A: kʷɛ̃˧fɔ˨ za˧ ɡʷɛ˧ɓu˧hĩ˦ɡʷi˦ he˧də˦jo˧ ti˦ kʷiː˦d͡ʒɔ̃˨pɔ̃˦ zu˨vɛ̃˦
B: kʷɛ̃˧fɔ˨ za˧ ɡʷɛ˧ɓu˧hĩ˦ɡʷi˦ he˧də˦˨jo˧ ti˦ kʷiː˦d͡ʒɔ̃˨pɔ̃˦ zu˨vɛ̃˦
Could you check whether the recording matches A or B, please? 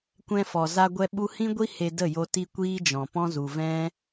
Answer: B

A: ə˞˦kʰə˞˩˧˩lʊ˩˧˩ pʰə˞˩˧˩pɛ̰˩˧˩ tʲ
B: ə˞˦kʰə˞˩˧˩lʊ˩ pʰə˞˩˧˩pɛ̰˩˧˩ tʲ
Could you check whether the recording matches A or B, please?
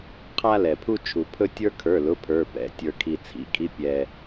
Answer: A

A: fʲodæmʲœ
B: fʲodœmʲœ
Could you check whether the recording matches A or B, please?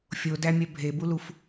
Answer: A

